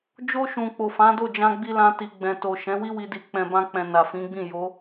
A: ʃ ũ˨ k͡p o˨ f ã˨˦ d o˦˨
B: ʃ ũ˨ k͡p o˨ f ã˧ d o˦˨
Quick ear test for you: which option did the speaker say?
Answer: A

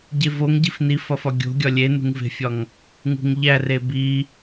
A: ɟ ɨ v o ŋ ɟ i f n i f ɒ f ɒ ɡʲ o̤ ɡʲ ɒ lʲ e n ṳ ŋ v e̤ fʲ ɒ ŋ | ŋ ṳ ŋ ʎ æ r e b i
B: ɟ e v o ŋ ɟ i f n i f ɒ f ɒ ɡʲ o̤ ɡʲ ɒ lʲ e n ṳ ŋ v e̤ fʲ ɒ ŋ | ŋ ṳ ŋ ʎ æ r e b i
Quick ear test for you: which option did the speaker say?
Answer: B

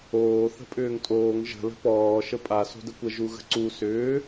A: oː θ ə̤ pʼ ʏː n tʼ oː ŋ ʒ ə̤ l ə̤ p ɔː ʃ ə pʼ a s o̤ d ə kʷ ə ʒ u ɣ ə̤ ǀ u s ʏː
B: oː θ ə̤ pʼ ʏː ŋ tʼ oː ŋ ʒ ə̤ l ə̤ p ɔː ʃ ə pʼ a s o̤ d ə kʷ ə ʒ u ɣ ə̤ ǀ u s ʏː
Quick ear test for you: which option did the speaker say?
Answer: B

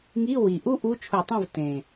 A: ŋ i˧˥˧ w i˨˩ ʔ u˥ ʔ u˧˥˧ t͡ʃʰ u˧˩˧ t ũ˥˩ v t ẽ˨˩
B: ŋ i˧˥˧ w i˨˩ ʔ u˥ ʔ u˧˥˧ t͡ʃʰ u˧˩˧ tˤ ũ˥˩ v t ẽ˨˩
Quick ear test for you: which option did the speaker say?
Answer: B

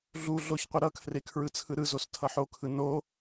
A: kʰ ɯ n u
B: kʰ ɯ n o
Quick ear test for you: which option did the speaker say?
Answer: B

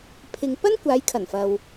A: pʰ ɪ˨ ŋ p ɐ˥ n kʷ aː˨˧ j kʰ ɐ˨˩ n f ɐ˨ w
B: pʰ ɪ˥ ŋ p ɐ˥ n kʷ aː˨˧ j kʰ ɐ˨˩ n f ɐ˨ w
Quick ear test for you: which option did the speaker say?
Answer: A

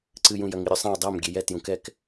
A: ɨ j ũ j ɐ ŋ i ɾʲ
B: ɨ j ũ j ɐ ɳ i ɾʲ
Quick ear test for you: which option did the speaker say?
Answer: A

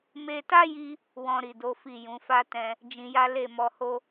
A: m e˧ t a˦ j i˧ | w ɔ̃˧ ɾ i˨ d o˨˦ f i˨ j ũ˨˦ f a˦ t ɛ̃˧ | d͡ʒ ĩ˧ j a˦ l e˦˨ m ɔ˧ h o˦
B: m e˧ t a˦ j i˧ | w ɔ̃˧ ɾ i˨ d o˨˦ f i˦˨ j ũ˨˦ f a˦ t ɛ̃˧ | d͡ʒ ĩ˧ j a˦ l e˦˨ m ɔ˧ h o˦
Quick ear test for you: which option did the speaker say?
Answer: B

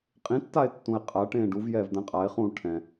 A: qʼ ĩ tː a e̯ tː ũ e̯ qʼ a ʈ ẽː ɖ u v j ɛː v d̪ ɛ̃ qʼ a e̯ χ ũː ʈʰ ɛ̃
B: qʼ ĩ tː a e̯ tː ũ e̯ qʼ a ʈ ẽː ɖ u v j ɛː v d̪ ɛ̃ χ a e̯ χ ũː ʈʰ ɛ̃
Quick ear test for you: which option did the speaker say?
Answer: A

